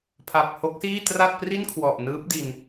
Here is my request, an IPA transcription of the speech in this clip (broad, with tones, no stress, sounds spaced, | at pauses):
pʰ a˨˩ p̚ h o˦˥ k̚ s iː˥˩ t r a˥˩ t̚ p r i˥˩ n kʰ w ɔ˨˩ ʔ n ɯː˦˥ p̚ d i˧ n